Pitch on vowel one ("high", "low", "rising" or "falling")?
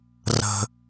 high